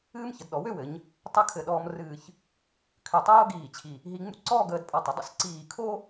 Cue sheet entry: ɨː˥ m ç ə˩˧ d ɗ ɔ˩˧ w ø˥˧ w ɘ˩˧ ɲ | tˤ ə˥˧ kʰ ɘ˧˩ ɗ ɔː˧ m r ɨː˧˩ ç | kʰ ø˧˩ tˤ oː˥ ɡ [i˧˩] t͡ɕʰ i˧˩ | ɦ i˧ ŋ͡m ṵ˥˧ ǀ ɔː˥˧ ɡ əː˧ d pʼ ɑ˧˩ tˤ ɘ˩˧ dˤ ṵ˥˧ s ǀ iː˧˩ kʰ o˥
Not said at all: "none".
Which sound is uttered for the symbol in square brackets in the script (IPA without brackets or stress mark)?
iː˧˩